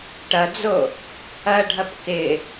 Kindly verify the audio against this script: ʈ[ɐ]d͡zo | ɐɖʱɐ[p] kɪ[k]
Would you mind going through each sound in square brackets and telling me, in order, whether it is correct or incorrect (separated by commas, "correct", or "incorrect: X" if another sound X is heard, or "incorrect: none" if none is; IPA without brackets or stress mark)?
correct, correct, incorrect: none